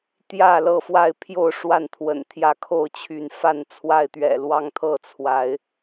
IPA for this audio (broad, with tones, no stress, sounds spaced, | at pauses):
t̪ j ä˥˨ l ɤ˥˨ f w a˥˨ ɪ̯ pʰ j o˥˨ ʊ̯ ʂ w a˥˨ n t̪ʰ w ə̰˨˩ n t̪ʰ j ä˥˨ kʰ o˥˨ ʊ̯ t͡ɕʰ y˨˦ n f a˥˨ n t͡sʰ w a˥˨ ɪ̯ t̪ ɥ ɛ̰˨˩ l w ɑ˥˨ ŋ t̪ʰ ɤ˥˨ t͡sʰ w a˨˦ ɪ̯